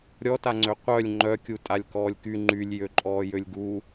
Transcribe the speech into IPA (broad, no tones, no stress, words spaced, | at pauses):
ɾʲɔtaŋ͡ǀø qʷœlʲ ŋ͡ǃœkʲu tʼalʲkɔːlʲky ŋ͡ǃylʲ jøǃʼɔːjølʲɡu